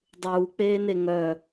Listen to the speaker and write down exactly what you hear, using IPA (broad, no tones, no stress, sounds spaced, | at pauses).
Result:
dˤ uː k͡p eː n e ŋ œ